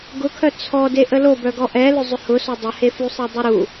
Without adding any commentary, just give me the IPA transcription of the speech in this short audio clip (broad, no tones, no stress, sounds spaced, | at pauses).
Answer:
ɡ ʊ kʰ œ t͡sʰ ɔ d e ʔ ə l o b œ ɡ ɔ ʔ ɛ l ʏ zˤ ʏ h ʊ s o dˤ ə h e f u sˤ e dˤ e ɾ u